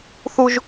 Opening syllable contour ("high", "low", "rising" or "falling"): high